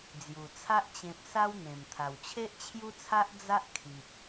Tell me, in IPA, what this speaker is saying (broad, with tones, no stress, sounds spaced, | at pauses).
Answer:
d͡z j u˨˩ t͡sʰ a˦ ʔ t͡ɕ ẽ˨ p̚ s a˦ w n̪ ẽ˨˩ m t̪ʰ a˨˩ w t͡ɕʰ e˦ ʔ t͡ɕʰ j u˦ t͡sʰ a˦ ʔ d͡z a˦ ʔ kʰ i˨ p̚